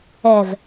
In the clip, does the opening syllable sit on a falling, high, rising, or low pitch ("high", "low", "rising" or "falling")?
low